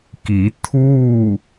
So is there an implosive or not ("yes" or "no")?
no